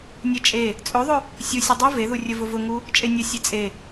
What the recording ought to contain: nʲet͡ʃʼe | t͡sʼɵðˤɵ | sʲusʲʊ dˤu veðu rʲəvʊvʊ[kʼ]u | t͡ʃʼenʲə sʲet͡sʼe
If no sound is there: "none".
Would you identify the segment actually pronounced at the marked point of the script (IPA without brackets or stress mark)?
ŋ